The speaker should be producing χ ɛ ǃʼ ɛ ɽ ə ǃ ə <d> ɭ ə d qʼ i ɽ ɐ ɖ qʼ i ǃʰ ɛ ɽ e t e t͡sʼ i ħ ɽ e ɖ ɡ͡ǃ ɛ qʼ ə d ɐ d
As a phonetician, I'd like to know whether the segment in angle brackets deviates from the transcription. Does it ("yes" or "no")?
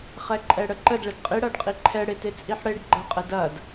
no